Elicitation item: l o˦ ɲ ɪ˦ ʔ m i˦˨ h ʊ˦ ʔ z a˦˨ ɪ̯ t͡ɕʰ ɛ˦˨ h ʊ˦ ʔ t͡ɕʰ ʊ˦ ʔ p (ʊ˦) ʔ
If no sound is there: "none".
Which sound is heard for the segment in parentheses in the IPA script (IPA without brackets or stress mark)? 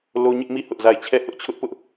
ʊ˦